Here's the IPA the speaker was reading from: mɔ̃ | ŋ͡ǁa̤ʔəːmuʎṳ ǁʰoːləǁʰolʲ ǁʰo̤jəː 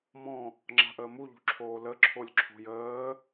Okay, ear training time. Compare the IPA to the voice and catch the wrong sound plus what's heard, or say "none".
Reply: none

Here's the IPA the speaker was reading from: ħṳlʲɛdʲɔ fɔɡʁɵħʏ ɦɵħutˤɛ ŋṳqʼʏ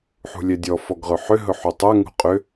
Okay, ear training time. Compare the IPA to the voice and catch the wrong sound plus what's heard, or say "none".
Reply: none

